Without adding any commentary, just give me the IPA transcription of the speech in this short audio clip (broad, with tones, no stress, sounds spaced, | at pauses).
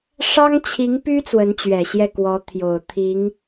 ʂ ɑ˥ ŋ t͡ɕʰ i˧˥ ŋ p y˥ t͡s w ə˧˥ n t͡ɕ ɥ ɛ˨˩ ɕ j ɛ˥˩ k w ɔ˧˥ t̪ʰ j o˨˩ ʊ̯ t̪ʰ i˧˥ ŋ